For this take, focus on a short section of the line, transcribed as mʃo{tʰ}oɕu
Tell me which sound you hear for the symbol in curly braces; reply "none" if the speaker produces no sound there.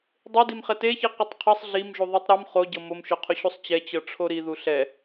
qʰ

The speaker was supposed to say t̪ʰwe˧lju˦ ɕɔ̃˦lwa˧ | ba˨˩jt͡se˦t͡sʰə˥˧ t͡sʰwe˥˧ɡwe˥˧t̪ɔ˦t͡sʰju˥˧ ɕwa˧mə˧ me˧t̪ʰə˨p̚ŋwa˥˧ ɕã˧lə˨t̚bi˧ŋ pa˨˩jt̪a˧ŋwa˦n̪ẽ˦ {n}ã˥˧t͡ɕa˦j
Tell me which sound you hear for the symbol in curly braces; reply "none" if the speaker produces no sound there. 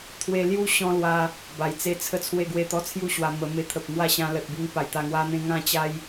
ŋ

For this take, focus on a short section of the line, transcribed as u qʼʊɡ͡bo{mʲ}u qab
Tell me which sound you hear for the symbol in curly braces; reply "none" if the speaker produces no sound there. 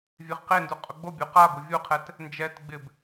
bʲ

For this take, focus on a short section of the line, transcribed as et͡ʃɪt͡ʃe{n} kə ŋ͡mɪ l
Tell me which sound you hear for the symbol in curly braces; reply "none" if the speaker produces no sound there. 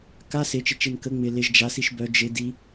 n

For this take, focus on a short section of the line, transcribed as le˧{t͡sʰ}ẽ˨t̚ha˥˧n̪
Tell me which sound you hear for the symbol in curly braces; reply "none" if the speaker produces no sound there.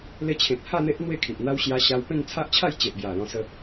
t͡ɕʰ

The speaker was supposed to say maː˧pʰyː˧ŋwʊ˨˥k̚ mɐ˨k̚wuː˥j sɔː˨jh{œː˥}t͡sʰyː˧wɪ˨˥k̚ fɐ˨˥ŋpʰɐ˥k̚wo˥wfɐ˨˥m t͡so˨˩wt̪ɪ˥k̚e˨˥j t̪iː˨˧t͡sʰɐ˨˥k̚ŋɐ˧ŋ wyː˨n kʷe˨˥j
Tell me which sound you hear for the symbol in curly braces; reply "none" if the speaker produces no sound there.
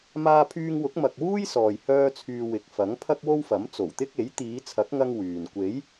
œː˥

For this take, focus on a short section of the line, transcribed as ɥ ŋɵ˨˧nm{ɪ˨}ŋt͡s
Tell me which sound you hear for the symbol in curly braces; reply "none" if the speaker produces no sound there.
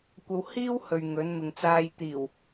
ɪ˨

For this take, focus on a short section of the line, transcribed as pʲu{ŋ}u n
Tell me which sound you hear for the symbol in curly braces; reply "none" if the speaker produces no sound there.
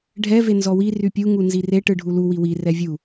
ŋ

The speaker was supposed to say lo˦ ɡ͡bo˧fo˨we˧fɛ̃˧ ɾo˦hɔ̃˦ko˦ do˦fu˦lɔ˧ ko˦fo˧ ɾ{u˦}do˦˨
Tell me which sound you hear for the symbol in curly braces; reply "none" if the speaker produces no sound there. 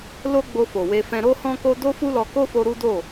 u˦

